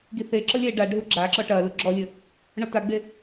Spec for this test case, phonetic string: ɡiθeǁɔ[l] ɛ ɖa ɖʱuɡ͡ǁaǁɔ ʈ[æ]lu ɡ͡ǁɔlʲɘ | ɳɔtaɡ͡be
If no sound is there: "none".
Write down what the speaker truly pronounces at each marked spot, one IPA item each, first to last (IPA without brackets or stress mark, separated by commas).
lʲ, ɐ